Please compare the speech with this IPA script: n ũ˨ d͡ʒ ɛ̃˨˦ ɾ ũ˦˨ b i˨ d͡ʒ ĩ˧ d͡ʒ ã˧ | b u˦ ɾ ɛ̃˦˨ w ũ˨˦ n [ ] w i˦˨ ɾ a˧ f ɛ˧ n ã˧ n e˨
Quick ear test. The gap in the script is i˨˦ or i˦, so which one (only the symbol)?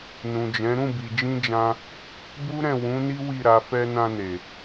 i˦